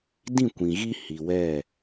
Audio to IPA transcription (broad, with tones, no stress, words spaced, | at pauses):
dĩ˦˨kʷĩ˨ɣi˦ hi˨wɛ˦˨